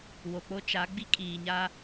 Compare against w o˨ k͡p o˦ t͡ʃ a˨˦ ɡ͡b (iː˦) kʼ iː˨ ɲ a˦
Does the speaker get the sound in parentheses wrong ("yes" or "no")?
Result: yes